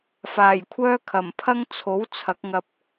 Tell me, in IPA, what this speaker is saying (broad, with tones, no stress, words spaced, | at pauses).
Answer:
faː˨˩jkʷʰœː˥ kʰɐ˨˩m pʰɐ˥ŋt͡sʰo˨˥wt͡sʰɐ˨˥k̚ŋɐ˧p̚